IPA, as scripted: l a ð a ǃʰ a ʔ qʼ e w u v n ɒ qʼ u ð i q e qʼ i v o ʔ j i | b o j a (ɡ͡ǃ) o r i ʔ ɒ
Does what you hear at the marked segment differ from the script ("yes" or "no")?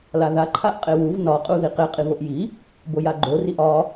no